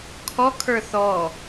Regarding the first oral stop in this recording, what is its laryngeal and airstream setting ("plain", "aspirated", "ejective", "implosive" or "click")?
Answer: aspirated